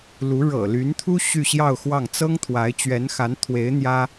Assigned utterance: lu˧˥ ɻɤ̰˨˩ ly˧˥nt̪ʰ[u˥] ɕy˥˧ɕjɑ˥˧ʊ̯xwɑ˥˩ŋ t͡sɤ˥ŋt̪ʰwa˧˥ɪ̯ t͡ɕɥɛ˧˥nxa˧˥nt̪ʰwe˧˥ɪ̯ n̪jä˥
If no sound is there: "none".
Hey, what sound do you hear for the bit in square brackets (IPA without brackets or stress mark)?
u˥